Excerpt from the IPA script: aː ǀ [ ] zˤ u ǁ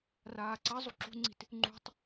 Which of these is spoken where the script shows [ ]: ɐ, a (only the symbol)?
ɐ